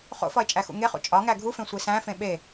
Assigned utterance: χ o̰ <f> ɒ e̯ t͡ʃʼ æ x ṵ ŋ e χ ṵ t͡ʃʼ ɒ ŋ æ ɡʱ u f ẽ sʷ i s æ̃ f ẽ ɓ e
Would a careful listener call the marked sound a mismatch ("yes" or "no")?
no